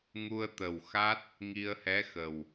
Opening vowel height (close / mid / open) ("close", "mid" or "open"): close